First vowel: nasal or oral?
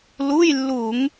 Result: oral